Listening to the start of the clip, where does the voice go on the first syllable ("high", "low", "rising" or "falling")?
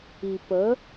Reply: low